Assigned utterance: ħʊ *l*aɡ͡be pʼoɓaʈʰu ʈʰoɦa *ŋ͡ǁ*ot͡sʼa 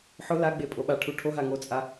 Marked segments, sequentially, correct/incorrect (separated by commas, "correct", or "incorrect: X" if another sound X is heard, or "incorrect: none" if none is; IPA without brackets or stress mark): correct, incorrect: ŋ